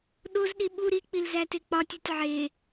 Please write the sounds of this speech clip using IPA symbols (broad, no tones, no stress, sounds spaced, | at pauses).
ɗ o z ɗ i ɓ u ɾ i k͡p i l z æ t e k͡p ɒ tʲ u tʲ ʕ e